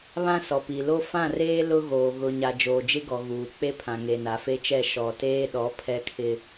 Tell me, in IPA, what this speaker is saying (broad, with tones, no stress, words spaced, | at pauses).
βã˦sɔ˨pi˨lo˦ fã˦˨reː˦ lʊ˦ɣoː˨ ɣʊ˨ɲa˨ d͡ʒoː˨d͡ʒɪ˦ɡɔ˨ ɣuː˨k͡pe˦pʰã˨ ŋe˨na˨fe˦t͡ʃɛ˦˨ ʃɔ˨teː˦ ɗɔ˨˦ pʰɛ˦kʰɪ˦